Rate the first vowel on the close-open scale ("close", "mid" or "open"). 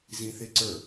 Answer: close